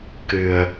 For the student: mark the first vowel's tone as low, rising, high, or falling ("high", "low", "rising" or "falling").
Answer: low